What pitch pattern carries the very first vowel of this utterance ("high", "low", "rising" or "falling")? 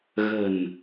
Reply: low